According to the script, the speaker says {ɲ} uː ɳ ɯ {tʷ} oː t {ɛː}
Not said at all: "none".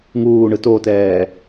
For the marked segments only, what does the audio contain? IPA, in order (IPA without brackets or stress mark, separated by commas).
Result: ŋ, t, ɛː